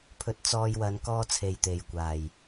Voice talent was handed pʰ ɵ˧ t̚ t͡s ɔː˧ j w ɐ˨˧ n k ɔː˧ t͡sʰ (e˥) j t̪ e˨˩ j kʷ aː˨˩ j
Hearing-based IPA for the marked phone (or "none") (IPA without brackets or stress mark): e˨˩